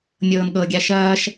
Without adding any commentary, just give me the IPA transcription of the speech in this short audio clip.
nʲ ɤː n ɠ ɤ ɡʲ a ʃ ɐː ʃ

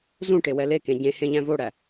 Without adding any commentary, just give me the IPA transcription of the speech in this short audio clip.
z ũ ʈ e w ɛ l e k ẽ ɟ ẽ h ẽ ʎ æ̃ v o ɽ æ

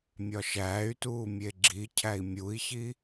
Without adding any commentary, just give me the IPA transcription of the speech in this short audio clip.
mʲ ɒ ʃ æː y̯ t uː mʲ e ɡ͡ǁ i cʰ æ i̯ mʲ u i̯ ç i

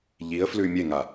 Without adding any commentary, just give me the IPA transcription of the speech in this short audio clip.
ʎ i ə̯ f l ʉ mʲ e ŋ a

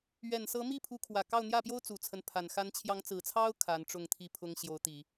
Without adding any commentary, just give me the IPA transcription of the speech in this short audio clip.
ɥ ɛ˨˩ n s ɤ˧˥ m i˥˩ pʰ u˧˥ kʰ w ä˨˩ k ɑ˥˧ ʊ̯ n̪ j ä˥˩ p j o˥ ʊ̯ t͡s u˨˩ t͡sʰ ə˦ n pʰ a˨˩ n x a˧˥ n t͡ɕʰ j ɑ˧˥ ŋ t͡s ɹ̩˨˩ t͡sʰ ɑ˥ ʊ̯ kʰ a˧˥ n ʈ͡ʂ ʊ˥˧ ŋ t̪ʰ i˥˩ pʰ ʊ˥ ŋ ɕ j o˧˥ ʊ̯ t̪ i˨˩˦

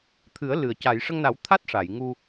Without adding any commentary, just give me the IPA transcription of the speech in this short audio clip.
t̪ʰ ɨ˨˩˦ ə̯ l ɨ˨˩ ə̯ c a˨˩˨ j ʂ ə˧ ŋ n a˨˩˦ w t̪ʰ a˦˥ t̚ ʂ a˨˩˨ j ŋ u˧

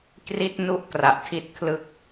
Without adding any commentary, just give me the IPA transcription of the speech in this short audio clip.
k r i˥˩ t̚ n u˥˩ ʔ k r a˨˩ ʔ tʰ i˥˩ t̚ kʰ l ɯ˥˩ k̚

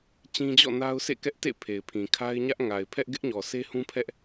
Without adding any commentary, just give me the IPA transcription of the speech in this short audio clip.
t͡ɕ ĩ˦ d͡ʑ ɔ̰˦˨ n a˦ ʊ̯ s ḛ˦˨ k ɛ˦ ʔ t ḛ˦˨ pʰ e˨ ɪ̯ pʰ ĩ˨ kʰ a˦ ɪ̯ ɲ ä˦ ʔ ŋ a˨ ɪ̯ pʰ ɛ˦ ʔ ɡ ɪ˦ ʔ ɲ ɔ˨ s e˦ h ũ˦ pʰ ɛ˦ ʔ

